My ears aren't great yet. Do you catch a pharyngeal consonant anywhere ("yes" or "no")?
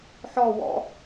yes